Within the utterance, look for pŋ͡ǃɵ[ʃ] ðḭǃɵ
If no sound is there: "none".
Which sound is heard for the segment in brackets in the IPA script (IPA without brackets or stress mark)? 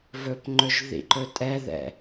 ʒ